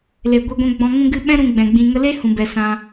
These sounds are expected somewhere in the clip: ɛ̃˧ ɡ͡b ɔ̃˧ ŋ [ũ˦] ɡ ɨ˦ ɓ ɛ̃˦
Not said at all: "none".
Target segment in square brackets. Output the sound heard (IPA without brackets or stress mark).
ũ˧